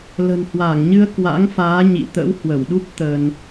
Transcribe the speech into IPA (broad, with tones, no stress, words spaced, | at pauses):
lə̤˨˩nhwaː˧˩ŋɲɨ˧ə̯ kwa̰˧˥ŋfaː˨˦ ɲḭ˧˨ t̪ə̰˧˥whwə˧˩wɗu˦˥p̚ t̪ə˧n